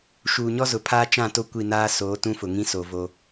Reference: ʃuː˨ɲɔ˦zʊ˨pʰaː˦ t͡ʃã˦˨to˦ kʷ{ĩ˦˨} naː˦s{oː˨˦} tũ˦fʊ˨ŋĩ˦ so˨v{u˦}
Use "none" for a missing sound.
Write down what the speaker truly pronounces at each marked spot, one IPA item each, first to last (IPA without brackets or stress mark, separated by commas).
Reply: i˦˨, oː˨˦, o˦